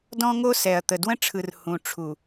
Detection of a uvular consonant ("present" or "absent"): absent